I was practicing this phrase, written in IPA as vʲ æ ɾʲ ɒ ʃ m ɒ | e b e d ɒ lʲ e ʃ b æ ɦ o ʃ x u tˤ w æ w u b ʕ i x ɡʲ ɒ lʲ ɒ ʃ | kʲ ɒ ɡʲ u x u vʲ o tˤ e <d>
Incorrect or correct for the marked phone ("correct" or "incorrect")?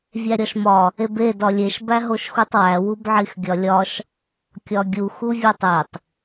incorrect